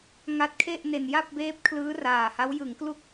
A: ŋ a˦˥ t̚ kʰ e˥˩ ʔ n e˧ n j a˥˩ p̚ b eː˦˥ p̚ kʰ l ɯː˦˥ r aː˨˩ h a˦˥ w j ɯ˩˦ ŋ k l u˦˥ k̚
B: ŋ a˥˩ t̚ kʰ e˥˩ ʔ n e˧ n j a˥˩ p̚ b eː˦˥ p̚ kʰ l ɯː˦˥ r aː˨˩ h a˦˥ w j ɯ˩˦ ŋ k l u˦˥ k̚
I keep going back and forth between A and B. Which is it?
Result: A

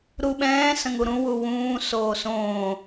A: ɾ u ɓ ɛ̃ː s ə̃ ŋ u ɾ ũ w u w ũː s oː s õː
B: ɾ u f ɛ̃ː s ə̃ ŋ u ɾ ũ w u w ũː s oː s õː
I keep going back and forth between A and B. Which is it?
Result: A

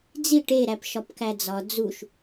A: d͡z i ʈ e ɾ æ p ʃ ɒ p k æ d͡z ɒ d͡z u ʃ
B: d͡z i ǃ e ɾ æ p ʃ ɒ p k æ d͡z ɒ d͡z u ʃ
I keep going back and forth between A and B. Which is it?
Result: A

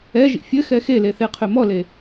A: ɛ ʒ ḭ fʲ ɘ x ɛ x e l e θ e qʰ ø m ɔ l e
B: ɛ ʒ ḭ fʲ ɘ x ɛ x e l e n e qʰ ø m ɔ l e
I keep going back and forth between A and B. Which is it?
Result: A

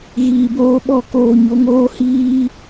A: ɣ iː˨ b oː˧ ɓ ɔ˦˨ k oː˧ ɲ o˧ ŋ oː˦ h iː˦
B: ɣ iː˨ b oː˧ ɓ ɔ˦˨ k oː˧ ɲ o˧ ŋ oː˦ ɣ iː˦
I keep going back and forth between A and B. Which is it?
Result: A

